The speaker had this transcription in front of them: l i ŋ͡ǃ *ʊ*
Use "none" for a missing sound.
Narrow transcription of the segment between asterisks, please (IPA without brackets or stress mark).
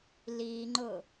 ʊ